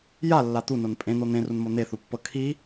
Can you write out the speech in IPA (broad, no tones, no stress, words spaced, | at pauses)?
jalːa t̪unon pʼẽn̪o n̪ẽrunmo n̪eθupːɤ kʰi